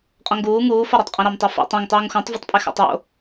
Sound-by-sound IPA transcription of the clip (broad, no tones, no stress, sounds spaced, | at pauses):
qʼ ɔ̃ ŋ ɡ uː ŋ uː f ɔ ɾ ɑ tˤ qʼ ẽ ɾ ɑ m tˤ o f ṵ tˤ ẽ ŋ tˤ uː ŋ x õ tˤ v o tˤ pʼ e x ɑ̰ tˤ w o̰